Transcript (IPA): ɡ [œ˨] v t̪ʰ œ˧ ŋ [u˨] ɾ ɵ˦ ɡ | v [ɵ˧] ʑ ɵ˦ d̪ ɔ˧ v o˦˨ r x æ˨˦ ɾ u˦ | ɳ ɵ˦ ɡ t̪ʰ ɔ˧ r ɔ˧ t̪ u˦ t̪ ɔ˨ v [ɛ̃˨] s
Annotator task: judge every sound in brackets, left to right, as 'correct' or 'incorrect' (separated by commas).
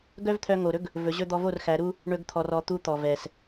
incorrect, incorrect, incorrect, incorrect